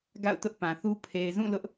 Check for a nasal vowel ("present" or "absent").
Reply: present